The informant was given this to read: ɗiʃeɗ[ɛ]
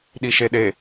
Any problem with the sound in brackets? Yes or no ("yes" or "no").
yes